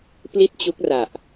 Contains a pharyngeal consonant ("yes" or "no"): no